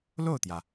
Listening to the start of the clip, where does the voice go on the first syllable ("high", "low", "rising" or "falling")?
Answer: falling